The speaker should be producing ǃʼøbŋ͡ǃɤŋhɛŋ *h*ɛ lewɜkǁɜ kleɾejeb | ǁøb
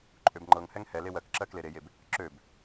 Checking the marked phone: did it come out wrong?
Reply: no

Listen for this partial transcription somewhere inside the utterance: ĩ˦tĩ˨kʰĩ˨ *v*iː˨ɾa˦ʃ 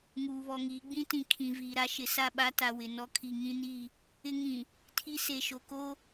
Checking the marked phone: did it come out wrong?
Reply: no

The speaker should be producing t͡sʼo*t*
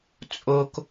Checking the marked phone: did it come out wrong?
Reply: yes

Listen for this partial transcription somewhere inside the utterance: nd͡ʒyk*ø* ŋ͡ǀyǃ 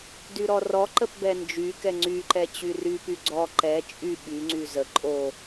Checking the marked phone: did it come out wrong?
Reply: yes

